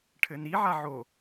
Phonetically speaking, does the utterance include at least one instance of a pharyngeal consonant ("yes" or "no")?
yes